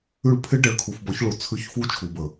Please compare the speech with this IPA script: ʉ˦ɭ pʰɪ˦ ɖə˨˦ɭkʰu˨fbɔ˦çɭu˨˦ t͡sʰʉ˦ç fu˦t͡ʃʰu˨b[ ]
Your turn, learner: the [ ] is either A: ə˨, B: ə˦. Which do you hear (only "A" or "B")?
A